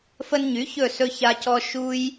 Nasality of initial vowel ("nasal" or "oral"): oral